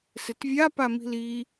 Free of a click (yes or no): yes